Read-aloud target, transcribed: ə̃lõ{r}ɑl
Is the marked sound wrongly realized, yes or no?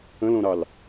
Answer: yes